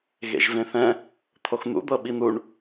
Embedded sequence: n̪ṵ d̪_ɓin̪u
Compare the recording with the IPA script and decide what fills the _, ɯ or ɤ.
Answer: ɤ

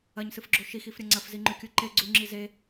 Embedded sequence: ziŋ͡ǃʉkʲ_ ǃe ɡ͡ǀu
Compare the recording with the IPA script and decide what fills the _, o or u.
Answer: u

